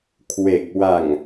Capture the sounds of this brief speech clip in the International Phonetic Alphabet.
kʰ w e˨˩ k̚ w a˨˩ ŋ

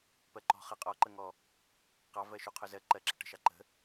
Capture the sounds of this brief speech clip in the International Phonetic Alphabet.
p ɜ ǃ ɔ̤ χ ɜ qʼ ɔ ǃ ə ŋ ɔ | q ɑ v ɜ ʃ u qʰ ʊ z ɜ ǃ ɜ ǁ ə̤ ʈ ə̤ ʃ ɑ ǃ ə̤

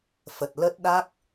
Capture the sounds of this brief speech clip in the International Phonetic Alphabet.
f ə˨˩ t̚ l ə˦˥ t̚ ɗ a˦˥ k̚

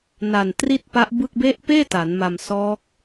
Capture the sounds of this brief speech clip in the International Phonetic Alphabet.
n a˨˩ n t r i˥˩ t̚ p a˦˥ ʔ b ɯ˥˩ k̚ b e˦˥ ʔ p eː˥˩ t a˩˦ n m a˧ m s ɔː˦˥ k̚

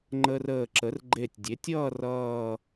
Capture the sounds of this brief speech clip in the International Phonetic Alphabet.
ŋ͡ǃ əː˧ r əː˧˩ ǁ ə˩˥ r ɡ͡ǃ e˧˩ tʲ dʲ e˩˥ tʲ ʌː˥˧ r ʌː˥˧

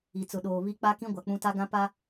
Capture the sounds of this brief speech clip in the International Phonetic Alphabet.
i˨ t͡s ʊ˨ ɗ oː˨ β i˦ k͡p a˦ k ĩ˦ ɡʷ a˨ k͡p ũ˦ t a˦ ɡ ã˦ p a˦

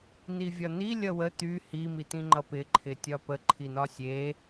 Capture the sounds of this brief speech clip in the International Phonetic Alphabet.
n̪ i vʲ ɒ n̪ i lʲ ʌ w ə t̪ y h i m i t̪ ĩ ŋ͡ǃ ʌ p ɪ ǃʰ ɪ tʲ ɒ p ə ǃʰ i n̪ ɒ sʲ e

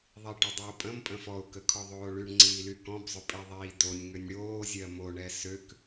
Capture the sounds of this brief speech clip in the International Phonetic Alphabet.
ðˤ i ʈ ʏ dˤ y ʊ̯ pʼ ə̃ m pʼ ə̃ f ɔ ʊ̯ k ə kʰ ɔ ðˤ oː ɭ y ɳ ŋ͡ǀ iː l y k ɔ̃ b zˤ ʏ pʼ i ðˤ iː d o nʲ ŋ ʏ nʲ ɽ oː zʲ ɜ m o ɳ ɛ s ø k

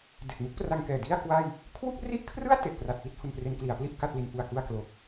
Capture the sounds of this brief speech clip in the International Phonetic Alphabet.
d e˨˩ k̚ m u˥˩ k̚ p r a˧ ŋ k ɛː˨˩ d i˥˩ a̯ k w a˥˩ j | kʰ w u˥˩ k̚ r i˥˩ ʔ kʰ r ɯ˥˩ a̯ t e˨˩ ʔ p r a˨˩ t̚ p i˥˩ t̚ h u˧ n p r e˦˥ n k l i˩˦ a̯ p l i˥˩ ʔ k a˥˩ t̚ l i˧ n p u˨˩ a̯ k u˧ a̯ k l o˨˩ k̚

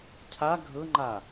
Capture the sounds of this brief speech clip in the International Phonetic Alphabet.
cʰ a ɡʱ ɤ ŋ͡ǃ a

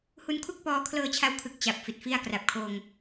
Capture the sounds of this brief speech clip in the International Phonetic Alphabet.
h u˧ n kʰ u˥˩ k̚ p ɔː˧ kʰ l ɤː˧ t͡ɕʰ a˧ w kʰ ɯ˨˩ k̚ t͡ɕ a˨˩ p̚ f i˨˩ t̚ f i˥˩ a̯ k r a˨˩ p̚ kʰ oː˧ ŋ

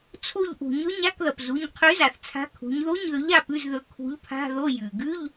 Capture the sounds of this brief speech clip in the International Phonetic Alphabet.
t͡sʰ o˦˨ ʎ ʔ ṳ˩ ɲ ɵ˧˥˧ ɲ a˧˥˧ k ð ɐ˩ p z u˩˧˩ ɲ qʰ ʉ˨˥ z a˩ θ t͡sʰ a̤˨˥ kʰ ṳ˩˧ ɲ ð o˧˥˧ ɲ ð ɵ˨˥ ʎ a˦˨ p ʉ˧˥˧ z ð ɵ˨˥ kʰ ṳ˨˥ ʎ pʰ a̤˧˥˧ ð o˧˥˧ j ʉ˩ ɡ ʉ˧˥˧ ʎ

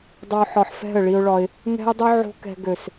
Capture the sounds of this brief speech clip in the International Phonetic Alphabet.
dˤ o˧ ħ ɒ˨ ħ f ɛ̤˦˨ ə̯ ɭ i˧ ʊ̯ ɭ ɒ˧ ɪ̯ | ŋ ɛ̤˦ ɪ̯ dˤ ø˦ ʕ o̤˦ k ɛ̤˧ ɡ ø˨ s

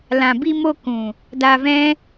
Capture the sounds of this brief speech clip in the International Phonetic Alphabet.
l ã˨ b i˧ m o˧ k ũ˨ | d a˧ v ɛ̃˦

